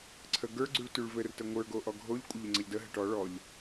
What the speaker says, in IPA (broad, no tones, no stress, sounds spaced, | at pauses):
ǀʰ ə ɡ ə˞ ɡ͡ǀ y ɭ t y ɭ v ɘ r t ə ŋʷ ə˞ ɡ o ʔ ɔ ɡʱ o ʎ kʷʼ ə ʎ ɘ ŋ͡ǀ ə ʎ d ə ɦ ɘ ʈ ɔ ɭ ɔ ʎ